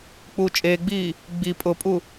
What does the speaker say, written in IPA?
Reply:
k͡p uː t͡ʃʼ eː ɡ͡b iː | ɡ͡b i pʼ ʊ pʼ u

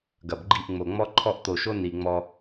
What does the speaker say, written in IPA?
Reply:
ɡ ɐ˨ b ɡ͡ǃ i˦˨ ʔ ŋ͡m o˨ ŋ͡m ɔ˦ ǃʰ ɔ˦˨ ʔ t̪ o˨ ʃ o˦ n i˨ ŋ͡m ɔ˦

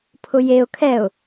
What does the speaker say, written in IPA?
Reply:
pʰ ʊ j e ʊ̯ kʰ ɛ ʊ̯

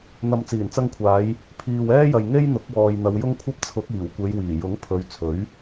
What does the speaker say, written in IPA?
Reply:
n̪ ɐ˨ m t͡s iː˨˩ n t͡s ɐ˧ ŋ kʷʰ aː˨˧ j | pʰ iː˨ w ɛː˥ j ɐ˨ j ŋ e˥ j n̪ ʊ˨˥ k̚ w ɔː˨ j n̪ ɐ˨˧ w j ʊ˥ ŋ kʷʰ ɐ˥ p̚ t͡sʰ ʊ˨˥ k̚ iː˨˩ w kʷ e˨˧ j w iː˨˩ j ʊ˨˥ ŋ pʰ ɵ˨˧ ɥ t͡sʰ ɵ˨˥ ɥ

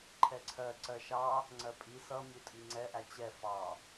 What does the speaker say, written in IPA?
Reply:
ǃʰ ɛ ǀʰ ɜ ǀ ɜ ʃ ɑ | ŋ͡ǀ ɜ pʼ i s ʌ mʲ u tʼ i ŋ͡ǀ ɛ ʔ æ t͡ɕ ɛ f ɑ

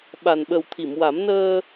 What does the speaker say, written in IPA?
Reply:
ɓ a˨˩ n ɓ ə˨˩ w t̪ʰ i˨˩˨ m w a˨˩˦ m n əː˧

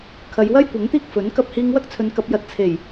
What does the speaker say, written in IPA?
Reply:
kʰ ɐ˨˧ j w ɐ˥ j kʷ ɐ˨˥ ŋ t̪ iː˥ k̚ f ɵ˨˥ n k ɐ˥ p̚ h iː˧ ŋ w ɐ˥ k̚ t͡sʰ ɵ˨˧ n k ɐ˧ p̚ j ɐ˧ t̚ t͡sʰ e˨˩ j

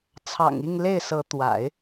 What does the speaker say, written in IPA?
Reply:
t͡sʰ ɑ̰˨˩ ŋ i˥˧ ŋ l e˥˩ ɪ̯ s ɤ˧˥ t̪ w a̰˨˩˦ ɪ̯

